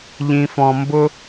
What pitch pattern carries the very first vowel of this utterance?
low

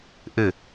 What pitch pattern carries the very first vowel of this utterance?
falling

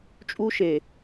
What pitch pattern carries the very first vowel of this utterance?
high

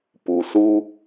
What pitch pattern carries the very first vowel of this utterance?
low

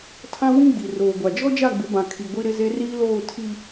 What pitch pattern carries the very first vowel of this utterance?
high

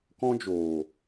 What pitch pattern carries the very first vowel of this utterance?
high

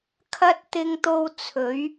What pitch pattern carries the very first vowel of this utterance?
high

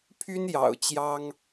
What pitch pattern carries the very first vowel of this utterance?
high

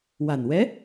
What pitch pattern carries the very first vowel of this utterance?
low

